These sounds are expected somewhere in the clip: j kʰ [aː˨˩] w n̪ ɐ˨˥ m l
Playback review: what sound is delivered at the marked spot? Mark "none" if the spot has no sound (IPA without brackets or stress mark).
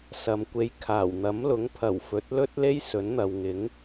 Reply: aː˨˩